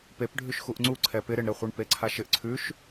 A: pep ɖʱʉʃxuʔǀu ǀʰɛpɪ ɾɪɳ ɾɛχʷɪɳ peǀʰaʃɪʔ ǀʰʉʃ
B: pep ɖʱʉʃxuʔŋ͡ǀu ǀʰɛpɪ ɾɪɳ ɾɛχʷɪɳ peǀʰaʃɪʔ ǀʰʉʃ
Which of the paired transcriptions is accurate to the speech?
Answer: B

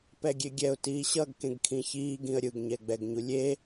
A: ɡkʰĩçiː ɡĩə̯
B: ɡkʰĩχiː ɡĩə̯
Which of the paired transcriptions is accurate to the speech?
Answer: A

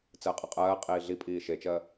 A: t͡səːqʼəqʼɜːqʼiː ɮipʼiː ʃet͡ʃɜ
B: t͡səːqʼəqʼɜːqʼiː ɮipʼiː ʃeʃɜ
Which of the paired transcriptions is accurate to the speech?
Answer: A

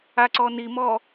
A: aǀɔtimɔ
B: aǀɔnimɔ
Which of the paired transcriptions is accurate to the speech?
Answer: B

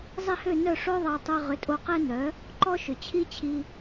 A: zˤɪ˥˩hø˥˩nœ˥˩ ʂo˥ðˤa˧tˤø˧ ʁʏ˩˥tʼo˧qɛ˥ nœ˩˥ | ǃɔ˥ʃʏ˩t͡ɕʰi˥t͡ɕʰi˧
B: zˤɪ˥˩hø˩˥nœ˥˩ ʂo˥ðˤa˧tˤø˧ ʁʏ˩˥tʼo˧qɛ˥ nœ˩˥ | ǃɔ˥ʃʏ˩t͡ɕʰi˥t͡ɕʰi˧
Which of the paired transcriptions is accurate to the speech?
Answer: A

